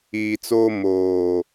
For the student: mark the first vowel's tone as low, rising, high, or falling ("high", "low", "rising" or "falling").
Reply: low